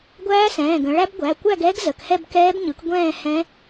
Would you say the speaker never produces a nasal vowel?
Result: no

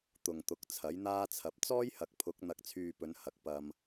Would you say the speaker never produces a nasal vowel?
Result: yes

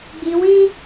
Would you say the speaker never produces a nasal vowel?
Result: no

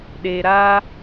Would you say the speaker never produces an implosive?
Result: no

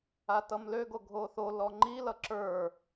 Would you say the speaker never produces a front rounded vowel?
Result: no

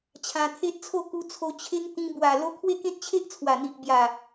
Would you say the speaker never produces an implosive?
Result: yes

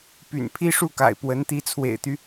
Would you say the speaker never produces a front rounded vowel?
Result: no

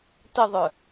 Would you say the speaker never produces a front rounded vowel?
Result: no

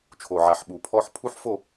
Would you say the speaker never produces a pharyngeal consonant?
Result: no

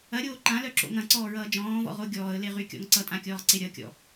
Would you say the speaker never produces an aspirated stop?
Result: yes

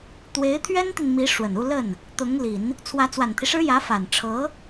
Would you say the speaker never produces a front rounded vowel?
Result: yes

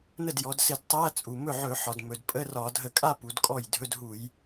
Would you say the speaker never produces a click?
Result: yes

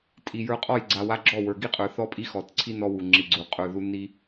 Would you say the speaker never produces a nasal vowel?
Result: yes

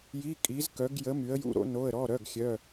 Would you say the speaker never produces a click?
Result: yes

